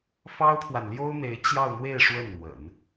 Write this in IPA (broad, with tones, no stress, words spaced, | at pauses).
fɑ˥ʊ̯t̪ʰwa˨nljo˥ʊ̯n̪e˧˥ɪ̯ t͡ɕjɑ˥˧ʊ̯n̪we˥˧ɪ̯ ʂwə˥˩nn̪wə̰˨˩˦n